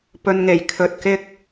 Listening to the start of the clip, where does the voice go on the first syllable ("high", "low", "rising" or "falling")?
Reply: low